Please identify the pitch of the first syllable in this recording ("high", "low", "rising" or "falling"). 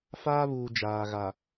high